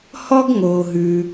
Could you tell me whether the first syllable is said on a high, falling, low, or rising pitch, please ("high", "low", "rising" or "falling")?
high